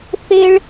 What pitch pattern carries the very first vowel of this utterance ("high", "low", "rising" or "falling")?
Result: high